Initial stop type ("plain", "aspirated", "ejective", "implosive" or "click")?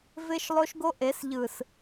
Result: plain